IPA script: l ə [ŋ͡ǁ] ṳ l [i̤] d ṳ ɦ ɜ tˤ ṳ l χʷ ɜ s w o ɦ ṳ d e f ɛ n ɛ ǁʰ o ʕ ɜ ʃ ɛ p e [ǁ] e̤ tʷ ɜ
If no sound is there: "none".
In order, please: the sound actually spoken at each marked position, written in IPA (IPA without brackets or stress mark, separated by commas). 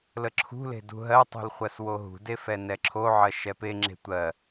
ǁʰ, e̤, ŋ͡ǁ